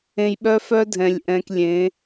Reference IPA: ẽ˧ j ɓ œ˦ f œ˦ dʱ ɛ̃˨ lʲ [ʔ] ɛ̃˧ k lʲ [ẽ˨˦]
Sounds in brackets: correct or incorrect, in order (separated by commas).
correct, correct